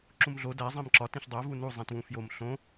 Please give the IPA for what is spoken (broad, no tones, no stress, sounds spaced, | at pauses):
ǁ ũ m ɮ o d æ zˤ ẽ m ǁ ɒ t ĩ ɬ dˤ æ v u n u zˤ ĩ t w ũ f j o m ɬ õ